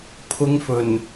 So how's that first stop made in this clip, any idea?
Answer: aspirated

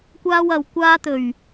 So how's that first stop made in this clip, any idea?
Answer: plain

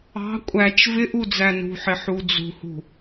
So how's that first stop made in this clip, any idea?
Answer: ejective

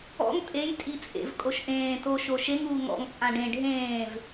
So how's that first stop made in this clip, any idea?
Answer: ejective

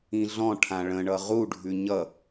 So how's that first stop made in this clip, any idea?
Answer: aspirated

